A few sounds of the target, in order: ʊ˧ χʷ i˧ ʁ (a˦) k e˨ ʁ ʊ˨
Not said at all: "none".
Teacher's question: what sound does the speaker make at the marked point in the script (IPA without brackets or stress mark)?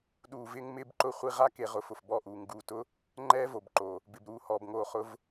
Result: a˦